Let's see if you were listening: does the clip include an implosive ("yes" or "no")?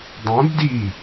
no